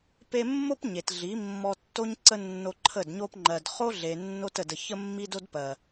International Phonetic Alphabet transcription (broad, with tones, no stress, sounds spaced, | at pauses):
p e˧ mː o˦ p ɲ e˨ t ɮ i˨˦ mː ɔ˧ tː o˦ ɲ ǀ ə˦ nː o˧ ǃʰ ə˦˨ d ɲ o˦ p ŋ͡ǃ ɜ˨ d χ o˦ ɮ e˨ nː o˧ t ə˨ d ə˨ ç ə˦ mː i˦ d o˦ d p ɜ˨